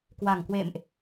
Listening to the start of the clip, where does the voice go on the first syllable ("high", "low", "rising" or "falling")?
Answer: low